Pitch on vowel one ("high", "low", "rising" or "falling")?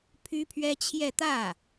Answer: high